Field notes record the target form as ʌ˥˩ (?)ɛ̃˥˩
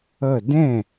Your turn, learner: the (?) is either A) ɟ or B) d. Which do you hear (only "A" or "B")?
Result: B